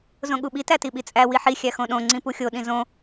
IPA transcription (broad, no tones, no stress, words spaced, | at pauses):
zõɠuɓi tætiɓit͡sʼæ wiħi xʲæxõɗõ ŋ͡ǀĩpuxʲo ɗĩzõ